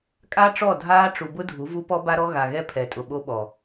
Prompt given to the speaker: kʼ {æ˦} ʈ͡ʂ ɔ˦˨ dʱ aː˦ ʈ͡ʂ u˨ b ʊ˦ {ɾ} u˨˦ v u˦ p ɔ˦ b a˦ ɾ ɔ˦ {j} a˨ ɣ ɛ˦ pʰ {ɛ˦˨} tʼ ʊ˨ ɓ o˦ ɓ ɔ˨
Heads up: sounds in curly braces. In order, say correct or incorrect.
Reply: incorrect: a˦, incorrect: dʱ, incorrect: ɣ, incorrect: ɛ˨

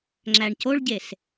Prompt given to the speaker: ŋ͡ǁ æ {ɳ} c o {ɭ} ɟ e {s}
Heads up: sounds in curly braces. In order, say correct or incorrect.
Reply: correct, correct, correct

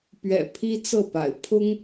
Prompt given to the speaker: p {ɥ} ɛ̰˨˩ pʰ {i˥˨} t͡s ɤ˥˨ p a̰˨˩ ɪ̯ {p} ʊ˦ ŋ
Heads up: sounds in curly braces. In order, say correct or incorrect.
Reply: correct, incorrect: i˦, incorrect: pʰ

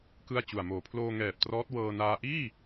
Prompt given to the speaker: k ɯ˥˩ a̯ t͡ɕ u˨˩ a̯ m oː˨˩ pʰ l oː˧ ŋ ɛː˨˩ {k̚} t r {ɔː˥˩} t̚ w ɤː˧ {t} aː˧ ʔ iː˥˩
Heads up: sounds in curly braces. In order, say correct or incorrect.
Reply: incorrect: p̚, incorrect: ɔː˦˥, incorrect: n

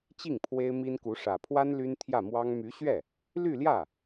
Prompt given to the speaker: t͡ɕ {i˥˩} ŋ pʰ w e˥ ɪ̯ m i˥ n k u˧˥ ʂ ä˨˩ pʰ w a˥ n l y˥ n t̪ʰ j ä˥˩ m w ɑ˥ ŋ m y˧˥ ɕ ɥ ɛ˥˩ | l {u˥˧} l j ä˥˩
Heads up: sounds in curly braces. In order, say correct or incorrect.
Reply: correct, incorrect: y˥˧

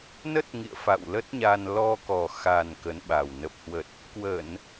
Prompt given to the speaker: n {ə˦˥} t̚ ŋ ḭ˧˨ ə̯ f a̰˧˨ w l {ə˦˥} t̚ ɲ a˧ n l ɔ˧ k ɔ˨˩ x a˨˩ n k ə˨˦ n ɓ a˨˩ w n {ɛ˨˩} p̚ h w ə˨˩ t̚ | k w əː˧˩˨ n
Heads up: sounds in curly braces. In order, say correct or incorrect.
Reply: correct, correct, incorrect: ə˨˩

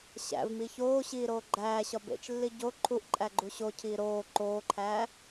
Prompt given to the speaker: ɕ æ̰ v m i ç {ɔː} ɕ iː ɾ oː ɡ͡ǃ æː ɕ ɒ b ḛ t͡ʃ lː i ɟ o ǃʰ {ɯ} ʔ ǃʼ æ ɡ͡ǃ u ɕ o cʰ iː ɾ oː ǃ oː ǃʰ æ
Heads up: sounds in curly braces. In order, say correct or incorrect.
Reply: incorrect: oː, incorrect: u

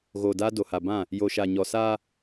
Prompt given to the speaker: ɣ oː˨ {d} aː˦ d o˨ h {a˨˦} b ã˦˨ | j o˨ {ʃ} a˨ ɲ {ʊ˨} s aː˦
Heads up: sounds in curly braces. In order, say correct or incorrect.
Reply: correct, incorrect: a˨, correct, incorrect: ɔ˨

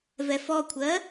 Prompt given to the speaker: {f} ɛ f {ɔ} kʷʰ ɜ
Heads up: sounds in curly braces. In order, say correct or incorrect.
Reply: incorrect: v, correct

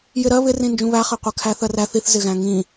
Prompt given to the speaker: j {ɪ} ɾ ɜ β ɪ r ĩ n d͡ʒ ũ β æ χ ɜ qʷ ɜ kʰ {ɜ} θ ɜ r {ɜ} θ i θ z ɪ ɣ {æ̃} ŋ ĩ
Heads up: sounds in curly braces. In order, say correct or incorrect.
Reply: correct, incorrect: æ, incorrect: æ, correct

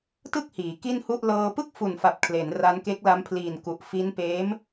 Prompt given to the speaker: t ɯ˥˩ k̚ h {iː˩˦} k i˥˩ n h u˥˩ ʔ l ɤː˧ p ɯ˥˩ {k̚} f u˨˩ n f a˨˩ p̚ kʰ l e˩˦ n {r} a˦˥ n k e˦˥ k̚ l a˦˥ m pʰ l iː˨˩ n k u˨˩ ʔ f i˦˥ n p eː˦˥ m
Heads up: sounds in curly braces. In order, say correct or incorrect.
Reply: correct, correct, correct

